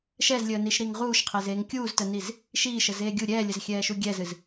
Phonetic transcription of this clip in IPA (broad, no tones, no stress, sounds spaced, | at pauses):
ʃ ɛ z lʲ əː n i ʃ ɾ i ŋ ʁ uː ʃ qʰ e z eː ŋ kʲ uː z t ə n i z | ʃ iː ʃ ə z eː ɡʲ u ɾʲ ɛː lʲ ə z xʲ ɛː ʃ u ɡʲ ɛ z ɨ z